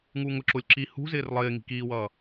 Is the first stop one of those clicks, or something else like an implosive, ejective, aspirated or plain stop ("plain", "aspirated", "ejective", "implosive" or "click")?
click